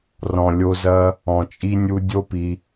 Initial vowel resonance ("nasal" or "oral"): nasal